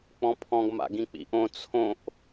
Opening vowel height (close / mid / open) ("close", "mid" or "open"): mid